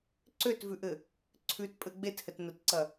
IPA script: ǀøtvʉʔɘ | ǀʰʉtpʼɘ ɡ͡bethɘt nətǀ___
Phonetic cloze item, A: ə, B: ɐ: B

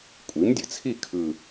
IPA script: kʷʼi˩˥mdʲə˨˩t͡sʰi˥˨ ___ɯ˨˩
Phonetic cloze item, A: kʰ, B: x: A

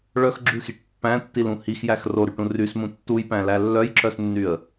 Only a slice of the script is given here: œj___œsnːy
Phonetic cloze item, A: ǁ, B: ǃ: A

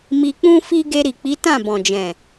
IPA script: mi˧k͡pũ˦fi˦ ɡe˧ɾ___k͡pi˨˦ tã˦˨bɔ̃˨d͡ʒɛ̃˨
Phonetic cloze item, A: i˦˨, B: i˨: B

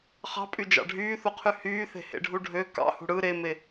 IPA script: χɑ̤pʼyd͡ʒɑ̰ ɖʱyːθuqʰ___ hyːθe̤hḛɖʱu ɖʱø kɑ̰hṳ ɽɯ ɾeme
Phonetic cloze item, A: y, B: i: A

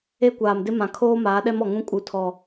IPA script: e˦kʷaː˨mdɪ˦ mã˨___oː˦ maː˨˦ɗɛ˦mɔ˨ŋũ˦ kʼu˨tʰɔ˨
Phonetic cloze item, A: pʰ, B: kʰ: B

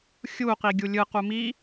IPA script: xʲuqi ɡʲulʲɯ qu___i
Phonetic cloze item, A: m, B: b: A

